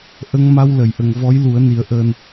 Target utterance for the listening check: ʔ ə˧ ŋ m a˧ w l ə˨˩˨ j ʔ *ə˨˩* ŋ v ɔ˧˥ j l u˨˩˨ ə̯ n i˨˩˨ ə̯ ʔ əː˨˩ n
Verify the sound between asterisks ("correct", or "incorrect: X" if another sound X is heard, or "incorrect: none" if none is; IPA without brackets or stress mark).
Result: correct